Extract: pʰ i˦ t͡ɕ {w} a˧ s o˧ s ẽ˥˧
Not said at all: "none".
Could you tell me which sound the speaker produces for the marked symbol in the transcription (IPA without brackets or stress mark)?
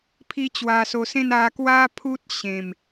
w